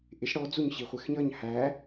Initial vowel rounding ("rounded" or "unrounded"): unrounded